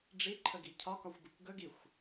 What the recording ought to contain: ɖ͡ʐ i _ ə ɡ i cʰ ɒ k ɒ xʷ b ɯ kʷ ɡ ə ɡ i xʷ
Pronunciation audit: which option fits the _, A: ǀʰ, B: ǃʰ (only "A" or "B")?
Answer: B